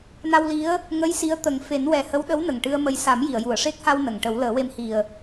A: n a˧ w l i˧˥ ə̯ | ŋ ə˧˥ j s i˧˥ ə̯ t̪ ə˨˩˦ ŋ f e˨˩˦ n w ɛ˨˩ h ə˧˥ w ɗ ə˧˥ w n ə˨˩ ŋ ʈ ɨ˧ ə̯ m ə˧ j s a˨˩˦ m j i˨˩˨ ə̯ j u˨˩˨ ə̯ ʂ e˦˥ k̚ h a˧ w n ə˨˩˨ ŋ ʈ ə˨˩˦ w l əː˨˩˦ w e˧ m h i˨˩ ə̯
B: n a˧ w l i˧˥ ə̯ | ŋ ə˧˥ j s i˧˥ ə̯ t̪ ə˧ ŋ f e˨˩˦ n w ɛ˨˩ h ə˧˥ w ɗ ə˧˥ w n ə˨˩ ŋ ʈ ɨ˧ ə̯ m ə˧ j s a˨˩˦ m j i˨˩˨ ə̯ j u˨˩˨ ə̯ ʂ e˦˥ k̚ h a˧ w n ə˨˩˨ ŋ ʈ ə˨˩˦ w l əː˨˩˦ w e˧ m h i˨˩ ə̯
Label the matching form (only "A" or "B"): A